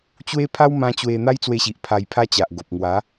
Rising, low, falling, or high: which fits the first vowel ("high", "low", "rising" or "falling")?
high